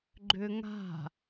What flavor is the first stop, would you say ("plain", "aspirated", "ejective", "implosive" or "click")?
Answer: click